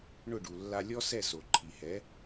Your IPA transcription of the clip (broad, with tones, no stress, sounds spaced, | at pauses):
ɳ ʊ˥˩ ɖ u˩ lː a˧ lʲ ɔ˥ s ɛ˥˩ s o˩ ǃʰ i˩ h ɛ˩˥